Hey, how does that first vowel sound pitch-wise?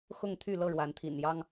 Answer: falling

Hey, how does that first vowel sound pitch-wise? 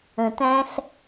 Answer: low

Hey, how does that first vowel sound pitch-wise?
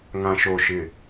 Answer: low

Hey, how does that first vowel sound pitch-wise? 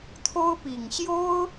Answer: high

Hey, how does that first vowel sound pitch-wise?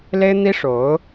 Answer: high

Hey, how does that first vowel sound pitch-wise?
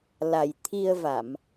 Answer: low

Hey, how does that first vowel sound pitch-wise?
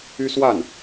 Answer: high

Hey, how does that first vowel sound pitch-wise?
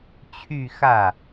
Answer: falling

